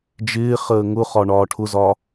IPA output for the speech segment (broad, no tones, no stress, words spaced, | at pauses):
d͡ʒɪː χəːŋʊχɒ ɳɒːʈʰʊzɒ